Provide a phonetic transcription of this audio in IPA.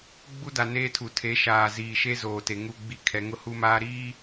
ɡ͡b u˦ d a˨ n eː˦ tʰ u˨ tʰ e˨˦ ʃ aː˨ z iː˨ ʃ e˦ z oː˨ t e˨ ŋ u˦ ɡ͡b i˦ kʰ ɛ˨ ŋ ʊ˦ h u˦ m aː˦ ɾ iː˦

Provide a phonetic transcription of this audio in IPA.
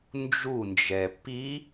n d͡ʒ u n d͡ʒ ɛ p i

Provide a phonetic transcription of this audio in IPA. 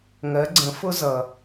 ŋ ɜ˩˧ ɡ͡ǀ ə̃˩˧ f ʊ˧ z ʌ˩

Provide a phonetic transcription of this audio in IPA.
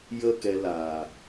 j ə˦ k ɛ˧ l aː˨

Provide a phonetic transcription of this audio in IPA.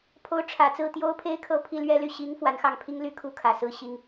pʰ o˧˥ ʊ̯ ʈ͡ʂʰ ä˨˩ t͡s ɹ̩˥˩ t̪ j o˥ ʊ̯ pʰ e˥ ɪ̯ kʰ ɤ˥˧ pʰ i˥˧ l ɥ ɛ˥˧ l y˥˩ ɕ i˧˥ ŋ f w a˧˥ n x ɑ˥˩ ŋ pʰ i˥ ŋ l y˥ kʰ u˥ kʰ ä˨˩ s ɹ̩˥˩ ɕ i˥ ŋ

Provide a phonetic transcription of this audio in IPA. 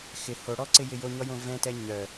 x ɪ h o ɽ ɔ ǀ ɪ j ɪ j o ɲ ɔ j õ v ɛ̃ t ɛ ɲ œ

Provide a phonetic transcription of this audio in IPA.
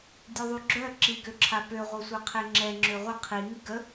dʲ u ðˤ y ɡ͡ǁ œ ǁ i ɡ ø ǁʰ a p ø ʁʷ ɛ sʷ ɛ qʰ e ŋ͡ǁ ɛ ŋ͡ǁ ø ʁʷ ə qʰ i ŋ i ɡ ə

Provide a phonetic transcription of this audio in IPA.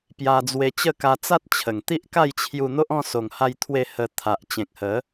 p j a˧ d͡z w e˧ t͡ɕ ə˥˧ k a˧ t͡s a˦ t̚ t͡ɕʰ ə˨˩ ŋ t̪ i˦ ʔ k a˥˧ j t͡ɕʰ j u˧ n̪ o˦ ʔ ɔ̃˥˧ s o˨˩ ŋ h a˧ j t̪ʰ w e˧ h ə˧ t̪ʰ a˨ ʔ t͡ɕ ẽ˨ k̚ h ə˨˦

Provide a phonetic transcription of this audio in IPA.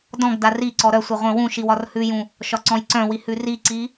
d ɔ̃ ɡ d a r i ǀ ɔ ɾ œ sʷ ɪ ʁʷ œ̃ w ũ ʃ i w ɒ r h ʉ j ũ | ʃ ɒ ǀ ɔ̃ j ǀ œ̃ w i h ʉ r i ǀ i

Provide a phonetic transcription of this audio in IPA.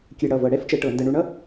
kʲ ɨ˧˩˧ ɽ ʌ˩˧˩ v ɤ˧˩˧ ɽ ɛ˥ f t͡ʃ ə˧˩˧ ʈ ɤ˧˩˧ n d ə˧ ɳ u˧ ɳ ʌ˥

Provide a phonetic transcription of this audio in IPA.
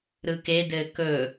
ɾ ɯ k e d ɘː k ɵ

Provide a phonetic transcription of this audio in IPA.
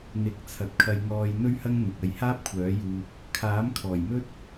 n̪ ɪ˨˥ k̚ t͡sʰ ɐ˨ t̚ kʰ ɐ˧ j ŋ ɔː˧ j n̪ ɵ˥ ɥ h ɐ˥ ŋ n̪ ʊ˨ k̚ ɐ˧ j h aː˥ p̚ kʷʰ œː˨˥ j uː˧ p̚ | kʰ aː˨˥ m kʰ ɔː˨˩ j m ɵ˥ t̚

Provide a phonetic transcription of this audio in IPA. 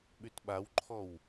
ɓ y t ɓ a w ǃʰ ɔ w

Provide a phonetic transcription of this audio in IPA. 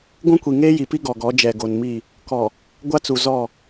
ɡʷ ũ˦ kʷ i˨ ŋ eː˦ j i˨ p i˦ ɡ ɔ˨ ɡ ɔ˨˦ d͡ʒ ɛ˨ ɡ o˨ n m i˦˨ | k ɔ˨ | ɡʷ a˦ t͡s u˨ z ɔ˦˨

